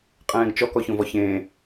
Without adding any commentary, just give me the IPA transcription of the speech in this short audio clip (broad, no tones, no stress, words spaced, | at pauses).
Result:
qʼɛ̃ːɡt͡ʃɔ kɔçõvɔçẽː